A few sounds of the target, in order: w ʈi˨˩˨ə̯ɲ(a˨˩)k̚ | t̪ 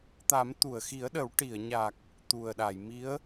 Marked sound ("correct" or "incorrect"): correct